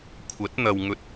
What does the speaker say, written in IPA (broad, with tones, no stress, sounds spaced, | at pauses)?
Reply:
kʷʰ ɐ˨˥ t̚ n̪ ɐ˨ w ŋ ɵ˨˥ t̚